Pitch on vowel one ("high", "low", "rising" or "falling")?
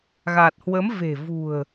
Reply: low